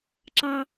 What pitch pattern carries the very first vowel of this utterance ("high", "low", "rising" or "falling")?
high